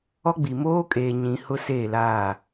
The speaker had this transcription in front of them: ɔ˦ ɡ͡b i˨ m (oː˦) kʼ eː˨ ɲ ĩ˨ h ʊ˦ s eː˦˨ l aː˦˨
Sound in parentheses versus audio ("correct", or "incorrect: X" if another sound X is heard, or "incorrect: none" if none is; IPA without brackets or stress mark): correct